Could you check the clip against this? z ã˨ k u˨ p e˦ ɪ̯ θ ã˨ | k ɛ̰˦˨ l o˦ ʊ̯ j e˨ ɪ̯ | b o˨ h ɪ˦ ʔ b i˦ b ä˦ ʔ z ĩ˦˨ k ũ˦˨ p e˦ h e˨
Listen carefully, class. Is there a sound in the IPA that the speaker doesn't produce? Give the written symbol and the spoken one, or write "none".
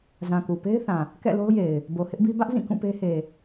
none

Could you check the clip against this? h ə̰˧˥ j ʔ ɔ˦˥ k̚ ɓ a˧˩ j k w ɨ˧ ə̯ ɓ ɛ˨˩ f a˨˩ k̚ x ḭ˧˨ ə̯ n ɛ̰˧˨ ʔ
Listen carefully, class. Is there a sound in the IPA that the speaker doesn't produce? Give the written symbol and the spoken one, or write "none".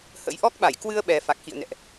none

